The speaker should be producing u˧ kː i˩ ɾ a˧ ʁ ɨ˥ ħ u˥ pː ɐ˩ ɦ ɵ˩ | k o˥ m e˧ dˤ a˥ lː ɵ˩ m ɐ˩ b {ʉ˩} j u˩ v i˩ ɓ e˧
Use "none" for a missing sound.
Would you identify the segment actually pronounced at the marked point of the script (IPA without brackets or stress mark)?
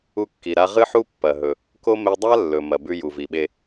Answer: ʉ˧